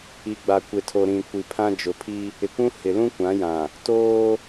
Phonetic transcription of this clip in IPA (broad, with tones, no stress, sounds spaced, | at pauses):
i˨ ɡ͡b a˨ kʷ e˨ tʰ o˨ ɾ ĩ˨ kʷ i˨ pʰ ã˦ d͡ʒ ʊ˨ pʰ i˦ | ɪ˨ kʷ ũ˦ h ɪ˨ l ũ˦ kʷ ã˨˦ j ã˨ | t oː˦